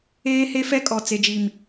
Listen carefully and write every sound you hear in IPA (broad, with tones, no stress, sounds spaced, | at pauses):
eː˦ h e˦ f ɛ˦ kʼ ɔ˨ t͡s e˨ d͡ʒ i˨ m